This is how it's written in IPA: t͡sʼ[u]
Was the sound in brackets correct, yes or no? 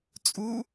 yes